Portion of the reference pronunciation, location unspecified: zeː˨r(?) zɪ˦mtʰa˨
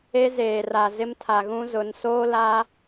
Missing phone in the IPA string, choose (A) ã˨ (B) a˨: B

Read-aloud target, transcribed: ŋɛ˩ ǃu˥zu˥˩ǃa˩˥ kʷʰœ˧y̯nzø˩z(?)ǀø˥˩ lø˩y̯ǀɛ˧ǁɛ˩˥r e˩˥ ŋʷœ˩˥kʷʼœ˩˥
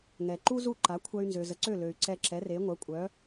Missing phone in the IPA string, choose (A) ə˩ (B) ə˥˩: A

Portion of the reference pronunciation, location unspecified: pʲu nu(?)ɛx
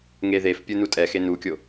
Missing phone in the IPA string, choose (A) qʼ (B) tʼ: B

